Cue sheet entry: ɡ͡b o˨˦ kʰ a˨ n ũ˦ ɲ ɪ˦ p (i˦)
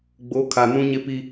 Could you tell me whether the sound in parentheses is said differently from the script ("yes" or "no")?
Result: no